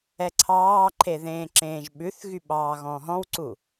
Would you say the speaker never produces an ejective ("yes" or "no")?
yes